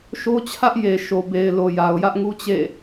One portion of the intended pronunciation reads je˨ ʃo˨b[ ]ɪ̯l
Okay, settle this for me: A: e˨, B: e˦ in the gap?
A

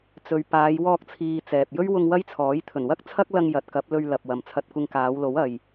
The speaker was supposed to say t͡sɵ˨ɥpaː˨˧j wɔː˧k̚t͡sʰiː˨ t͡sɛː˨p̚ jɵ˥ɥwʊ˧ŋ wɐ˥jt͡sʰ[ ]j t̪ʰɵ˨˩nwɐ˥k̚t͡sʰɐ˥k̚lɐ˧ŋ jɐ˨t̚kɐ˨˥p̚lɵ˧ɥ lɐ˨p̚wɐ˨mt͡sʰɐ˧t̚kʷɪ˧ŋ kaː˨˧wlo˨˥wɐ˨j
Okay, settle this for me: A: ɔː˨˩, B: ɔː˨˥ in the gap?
B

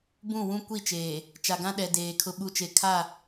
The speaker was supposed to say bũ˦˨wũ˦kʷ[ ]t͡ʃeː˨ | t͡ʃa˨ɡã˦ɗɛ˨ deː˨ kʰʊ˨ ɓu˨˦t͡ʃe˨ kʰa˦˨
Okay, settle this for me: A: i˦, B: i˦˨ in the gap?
B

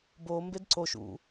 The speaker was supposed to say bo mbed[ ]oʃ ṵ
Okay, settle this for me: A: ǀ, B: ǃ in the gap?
A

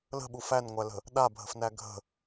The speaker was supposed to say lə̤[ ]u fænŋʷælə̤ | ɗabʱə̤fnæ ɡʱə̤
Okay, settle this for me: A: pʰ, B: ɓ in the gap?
B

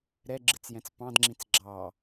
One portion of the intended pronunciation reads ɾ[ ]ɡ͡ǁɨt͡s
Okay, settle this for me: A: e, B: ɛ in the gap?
B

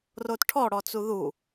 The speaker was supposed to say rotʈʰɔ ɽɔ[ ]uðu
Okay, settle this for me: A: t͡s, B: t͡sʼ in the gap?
A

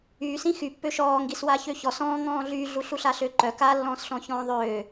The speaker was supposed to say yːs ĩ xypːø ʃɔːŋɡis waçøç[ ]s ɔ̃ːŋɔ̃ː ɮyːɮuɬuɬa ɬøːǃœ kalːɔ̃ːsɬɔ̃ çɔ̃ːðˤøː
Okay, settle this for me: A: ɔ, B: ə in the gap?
A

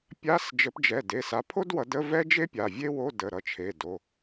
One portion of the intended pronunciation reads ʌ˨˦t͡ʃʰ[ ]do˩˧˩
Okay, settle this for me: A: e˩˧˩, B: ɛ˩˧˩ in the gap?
A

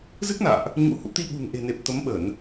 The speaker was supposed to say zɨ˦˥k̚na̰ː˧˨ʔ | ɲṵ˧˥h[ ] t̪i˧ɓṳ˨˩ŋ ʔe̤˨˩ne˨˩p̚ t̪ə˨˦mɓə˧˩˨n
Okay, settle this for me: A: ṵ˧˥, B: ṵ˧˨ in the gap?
A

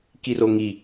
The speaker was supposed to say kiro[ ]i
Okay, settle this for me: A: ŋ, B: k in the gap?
A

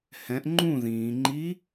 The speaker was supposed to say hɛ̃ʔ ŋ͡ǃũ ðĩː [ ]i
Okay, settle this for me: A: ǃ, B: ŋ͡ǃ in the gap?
B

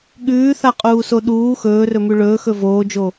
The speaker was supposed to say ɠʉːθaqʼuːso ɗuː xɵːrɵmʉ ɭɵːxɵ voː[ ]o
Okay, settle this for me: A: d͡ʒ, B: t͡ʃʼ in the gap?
A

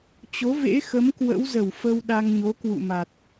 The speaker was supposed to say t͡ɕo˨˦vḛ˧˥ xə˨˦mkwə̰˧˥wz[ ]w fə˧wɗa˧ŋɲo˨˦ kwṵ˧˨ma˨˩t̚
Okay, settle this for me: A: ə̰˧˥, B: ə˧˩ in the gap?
B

